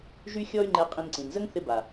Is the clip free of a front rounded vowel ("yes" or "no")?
no